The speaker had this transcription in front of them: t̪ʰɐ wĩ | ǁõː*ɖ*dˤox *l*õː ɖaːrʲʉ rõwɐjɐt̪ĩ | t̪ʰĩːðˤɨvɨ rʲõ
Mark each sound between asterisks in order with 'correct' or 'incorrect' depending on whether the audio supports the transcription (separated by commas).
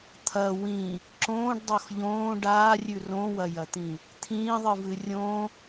correct, incorrect